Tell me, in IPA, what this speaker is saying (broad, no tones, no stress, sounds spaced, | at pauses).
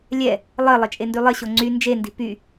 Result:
lʲ ɛ | lˠ ɘ lˠ ɘ t͡ʃʼ e n d y lˠ ɘ ɕ o ŋ͡ǀ y n d͡ʒ e n d i̤ p y